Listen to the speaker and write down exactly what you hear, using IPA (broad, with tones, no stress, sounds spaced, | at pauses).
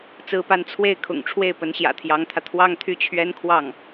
t͡s ɹ̩˥ p a˥ n t͡sʰ w e˥˩ ɪ̯ kʰ ʊ̰˨˩ ŋ ʈ͡ʂʰ w e˥˩ ɪ̯ p ə˧˥ n ɕ j ä̰˨˩ t̪ʰ j ɑ˧˥ ŋ t̪ʰ ä˧ t̪ʰ w ɑ˥ ŋ t̪ʰ y˥˩ t͡ɕʰ ɥ ɛ˥ n kʰ w ɑ˥˩ ŋ